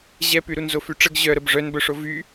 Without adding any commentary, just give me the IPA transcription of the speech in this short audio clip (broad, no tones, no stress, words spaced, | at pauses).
ʑɛpyɾunzo fyʈ͡ʂəɡ ʑœɾəb ʐœnbœʂo vy